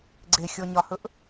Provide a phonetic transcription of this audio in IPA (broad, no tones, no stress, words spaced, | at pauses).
ɡ͡ǀexʲɔɲɒhɵʔ